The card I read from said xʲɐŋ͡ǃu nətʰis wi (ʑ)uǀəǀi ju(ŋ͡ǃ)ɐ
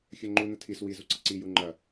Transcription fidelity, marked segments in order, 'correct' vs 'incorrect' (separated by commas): incorrect, correct